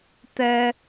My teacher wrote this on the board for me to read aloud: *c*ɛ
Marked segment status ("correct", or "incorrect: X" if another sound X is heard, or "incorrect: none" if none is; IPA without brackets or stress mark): incorrect: t̪